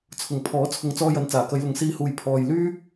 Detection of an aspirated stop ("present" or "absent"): present